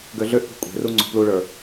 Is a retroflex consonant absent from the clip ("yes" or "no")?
no